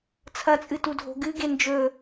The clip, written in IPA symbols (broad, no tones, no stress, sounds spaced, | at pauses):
t͡sʰ ɐ t͡sʼ ɨ t u dʱ o̤ ɡ ɨ ɡ e n d͡ʒ ɵ